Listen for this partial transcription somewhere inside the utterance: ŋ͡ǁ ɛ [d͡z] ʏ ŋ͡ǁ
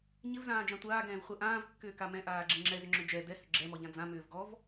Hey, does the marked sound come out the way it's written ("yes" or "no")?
no